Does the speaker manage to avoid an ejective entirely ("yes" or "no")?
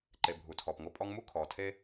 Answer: no